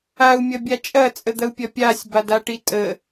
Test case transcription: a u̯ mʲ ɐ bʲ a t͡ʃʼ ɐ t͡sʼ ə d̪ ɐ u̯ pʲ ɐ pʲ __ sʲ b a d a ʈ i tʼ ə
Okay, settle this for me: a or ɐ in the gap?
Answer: a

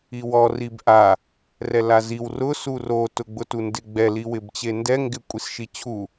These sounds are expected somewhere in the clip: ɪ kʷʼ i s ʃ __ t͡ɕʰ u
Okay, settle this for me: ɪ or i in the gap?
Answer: i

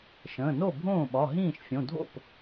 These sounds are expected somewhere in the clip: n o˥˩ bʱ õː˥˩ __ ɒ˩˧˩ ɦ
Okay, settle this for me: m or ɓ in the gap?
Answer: ɓ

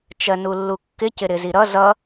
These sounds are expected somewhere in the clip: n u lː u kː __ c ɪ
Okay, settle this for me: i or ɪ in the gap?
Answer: ɪ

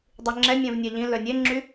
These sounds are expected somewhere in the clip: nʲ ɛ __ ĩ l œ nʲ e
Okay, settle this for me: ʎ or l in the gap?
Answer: ʎ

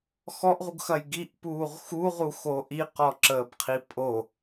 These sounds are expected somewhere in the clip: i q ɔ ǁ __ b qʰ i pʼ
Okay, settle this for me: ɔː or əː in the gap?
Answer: əː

